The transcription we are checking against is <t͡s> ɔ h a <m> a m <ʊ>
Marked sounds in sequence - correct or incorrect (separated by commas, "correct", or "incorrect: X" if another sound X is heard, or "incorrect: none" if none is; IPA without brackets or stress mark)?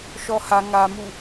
incorrect: ʃ, incorrect: ŋ, incorrect: u